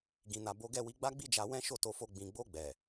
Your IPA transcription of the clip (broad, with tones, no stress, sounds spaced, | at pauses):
ɡ ĩ˨ n a˨ b o˨˦ ɡ ɛ˦˨ w i˧ ɡ͡b a˦ ɡ͡b i˦ d͡ʒ a˧ w ɛ̃˦ ʃ o˦˨ t o˧ f o˧ ɡ͡b ĩ˨ ɡ͡b o˧ ɡ͡b ɛ˨